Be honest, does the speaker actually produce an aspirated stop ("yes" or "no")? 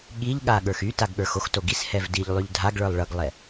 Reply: no